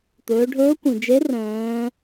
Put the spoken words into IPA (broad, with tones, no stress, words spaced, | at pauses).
t̪ɵː˩˧ɖʱɵː˧˥kʷĩ˩d͡ʒe˧˥ rœ̃ː˩˧